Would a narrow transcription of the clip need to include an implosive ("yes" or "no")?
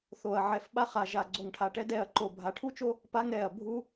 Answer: yes